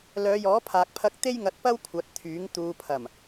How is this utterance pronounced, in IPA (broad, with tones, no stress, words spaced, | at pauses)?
lœː˨˧jɔː˨˥pʰaː˨k̚pʰɐ˧k̚ t̪e˥jŋɐ˧t̚pɐ˥w kʷʰɐ˨˥t̚t̪ʰyː˨˥ŋ t̪uː˨pʰɐ˨˩m